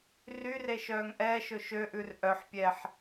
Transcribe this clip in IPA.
r y r e ʃ œː ŋ ʔ ɛː ʃ ɵ ʃ ø ʔ ʉ r ʔ œ ħ pʲ ɛː ħ

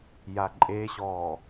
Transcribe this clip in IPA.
j a ǃʼ e ɕ ɔː

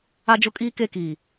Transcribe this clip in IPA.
a˦ d͡ʒ ʊ˦ kʼ iː˦ k e˦˨ k iː˨

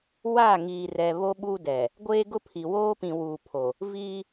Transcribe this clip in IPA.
w a˦˨ ŋ iː˨ r ɛ˨ β o˦ ɓ uː˦ d ɛ˨ | ɡʷ eː˦ ɡ ʊ˦ pʰ i˨ w oː˦ p ĩ˨ w uː˨ pʰ o˨ | v iː˦

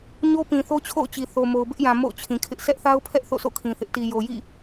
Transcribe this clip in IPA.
ɲ o˦ p ĩ˨ θ o˦ t͡ɕʰ o̰˦˨ ʊ̯ t͡ɕ i˨ θ o˨ m o˨ ʊ̯ b ɪ˦ ʔ j ã˨ m o̰˦˨ ʊ̯ t͡ɕʰ ĩ˨ kʰ ɪ˦ ʔ sʰ ɛ˦ ʔ θ a˦ ʊ̯ pʰ ɛ˦ ʔ θ o̰˦˨ sʰ o̰˦˨ kʰ ĩ˨ θ ɪ˦ ʔ t i˨ j o˨ j ḭ˦˨

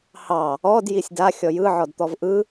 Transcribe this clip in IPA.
h ɑ | ɔ d j i sʲ d a xʲ ɔ j ɯ ʕ ɔ d t̪ ɔ v ʔ ɯ

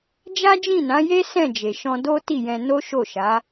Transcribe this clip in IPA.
d͡ʒ a˦ d͡ʒ ĩ˦˨ n ã˨˦ j e˦ s ɛ̃˦˨ d͡ʒ e˨ ʃ ɔ̃˧ d o˦ t i˦˨ j ɛ̃˧ n o˦ ʃ o˦˨ ʃ a˨˦

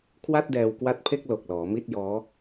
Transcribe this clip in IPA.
kʰ w a˥˩ t̚ d ɛː˧ w k w a˦˥ t̚ pʰ e˥˩ k̚ l o˨˩ k̚ l ɔː˩˦ m i˥˩ t̚ j ɔː˦˥

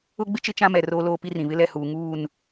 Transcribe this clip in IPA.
ʊ˦ ɡ͡b ɪ˦ t͡ʃ ɪ˦ t͡ʃ ã˦ m ɛ˨ r oː˦ l oː˦ p i˦ r ĩ˨ β ɪ˦ l ɛ˦˨ h uː˨ ŋ uː˦˨ n

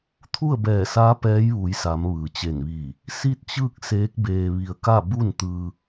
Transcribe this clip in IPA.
t̪ʰ u˥˨ ə̯ b ɛː˧˩ s a˧˥ p ɛː˧˥ j ʋ u˩˧ j s a˩˧ m ʋ ɯː˩ t͡ɕ e˧˩ n ʋ iː˧˩ | s i˥˨ t̚ t͡ɕ ɯː˥˨ k̚ s eː˧˥ k̚ b eː˧ ʋ i˧ ə̯ k a˥˨ b u˥˨ n t̪ ɯː˧

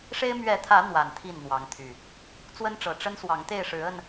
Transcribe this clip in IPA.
ʂ e˦ ɪ̯ m ɥ ɛ˨˦ t̪ʰ ä˨˦ n̪ w a˨˩ n t̪ʰ i˥˨ n n̪ w ɑ˨˦ ŋ t̪ʰ y˨˩ | t͡s w ə˦ n ʈ͡ʂ ɤ˨˩ ʈ͡ʂ ə˦ n s w ɑ˨˦ ŋ t̪ e˥˨ ɪ̯ ʂ ɻ̩˨˦ ə˥˨ n

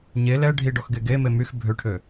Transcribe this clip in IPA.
ɲ e l ɛ ɖʱ i ɖ ɔ x ɡ e ɡ e m e m y x bʱ ø ʈʰ ø

